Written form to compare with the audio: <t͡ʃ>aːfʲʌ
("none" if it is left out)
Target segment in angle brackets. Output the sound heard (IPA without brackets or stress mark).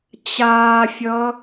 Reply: t͡ɕ